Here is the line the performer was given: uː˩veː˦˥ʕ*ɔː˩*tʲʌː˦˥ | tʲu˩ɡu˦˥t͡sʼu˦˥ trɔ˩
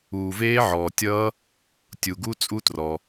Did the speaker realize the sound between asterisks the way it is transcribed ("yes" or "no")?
yes